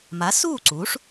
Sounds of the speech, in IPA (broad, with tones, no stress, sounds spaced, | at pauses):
m a˩˥ s uː˥˩ ǀ uː˩˥ ʂ